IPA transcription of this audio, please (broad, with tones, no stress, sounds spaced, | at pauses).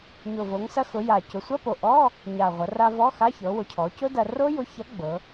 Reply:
ɲ ʊ˨˩ v o˩˧ ŋ s ɐ˧ x ʊ˩˧ j a˨˩ c ʊ˩˧ sʷ ɐ˧˥˧ p o˨˩ ʔ ɔ˧˥˧ | ɲ a˨˩ ʁʷ ɐ˩˧ r a˧ v ɔ˧˥˧ x a˧˥˧ ç ɤ˩˧ w ʊ˩˧ cʰ ɔ˩˧ c ʊ˦˥ d ɐ˧ r o˦˥ j ʊ˨˥ ç ɐ˨˥ ɡ͡b ɤ˩˧